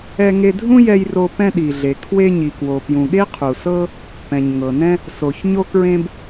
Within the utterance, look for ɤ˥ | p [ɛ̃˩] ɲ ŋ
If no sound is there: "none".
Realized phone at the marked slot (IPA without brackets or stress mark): ɛ̃˩